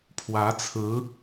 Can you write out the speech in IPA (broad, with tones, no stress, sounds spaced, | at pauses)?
pʰ w ä˧˥ t͡sʰ ɹ̩˧˥